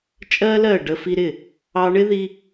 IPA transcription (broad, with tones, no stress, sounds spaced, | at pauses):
t͡ʃʼ ɜ˦ l ɜ˦˨ ɖ ə˧ f i˧ ɾ ɪ˦˨ | ɑ˧ ɳ ɪ˦ ð i˧